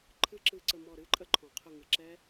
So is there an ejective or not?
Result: yes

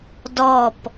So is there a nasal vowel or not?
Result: no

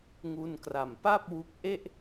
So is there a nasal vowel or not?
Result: no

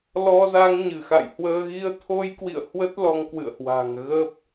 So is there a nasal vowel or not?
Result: no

